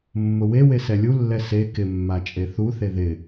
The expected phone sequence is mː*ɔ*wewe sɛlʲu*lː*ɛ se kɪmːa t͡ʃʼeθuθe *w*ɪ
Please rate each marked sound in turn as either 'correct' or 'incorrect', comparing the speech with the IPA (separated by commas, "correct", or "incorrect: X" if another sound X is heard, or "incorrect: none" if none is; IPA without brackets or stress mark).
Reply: incorrect: ʊ, correct, incorrect: ð